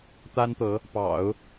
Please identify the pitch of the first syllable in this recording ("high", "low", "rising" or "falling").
high